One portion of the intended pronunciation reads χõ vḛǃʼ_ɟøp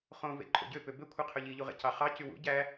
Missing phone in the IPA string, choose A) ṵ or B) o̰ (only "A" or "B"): B